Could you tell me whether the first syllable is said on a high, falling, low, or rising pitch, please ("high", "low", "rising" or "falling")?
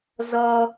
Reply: high